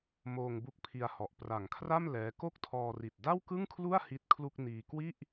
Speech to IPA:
moː˧ŋbu˦˥k̚pʰi˧a̯ hɔ˨˩ʔ pra˨˩ŋkʰra˥˩m lɛː˦˥ ko˥˩k̚tʰɔː˧ri˨˩t̚ da˥˩wkɯ˥˩ŋkʰlu˥˩a̯ hi˦˥t̚kʰlu˥˩k̚ niː˧ kwi˥˩ʔ

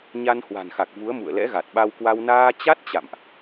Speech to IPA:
ɲa˧nhwa̤˨˩nxa˨˩k̚ vu˨˦ə̯mṵ˧˨ə̯lɛ̰˧˥ ɣa˨˩t̚ɓa˧wkwa˧w naː˧t͡ɕa˦˥t̚ t͡ɕa̰˧˨mʔ

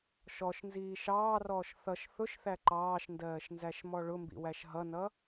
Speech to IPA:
ʃɔʃnziː ʃɑːrɔːʃ θʌʃ θʊʃθæ ǃɑːʃndɜːʃnzæʃmɔ ɭʊmbḭwæʃ ɦʌnʌ

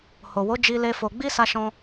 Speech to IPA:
ho˨wo˨˦ d͡ʒi˧le˧ fo˨ɡ͡bi˧ sa˦ʃɔ̃˦

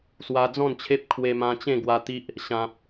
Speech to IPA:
swa˧d͡zɔ̃˥˧nt͡ɕʰe˦p̚ kʰwe˧mã˧t͡ɕẽ˥˧ɡwa˧ t̪i˦ʔ | ɕã˨p̚

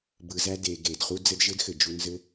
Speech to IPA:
bɯ˨zæ˧de˨ɡe˨d χu˧d͡zɘ˧d ʒɘ˦dxɘ˨ d͡ʒu˧ nzɘ˦

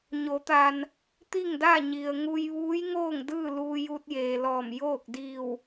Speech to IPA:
ɲo˩˧t̪a˩n | t̪i˥˨ŋda˥˨ɲi˩ə̯ ŋu˧jʋuː˧˥jŋoː˥˨ŋdɯː˥˨ luː˧ju˧t̚jeː˩lɔː˧˩m joː˥˨k̚ diː˧˩w

